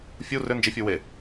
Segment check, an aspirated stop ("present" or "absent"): absent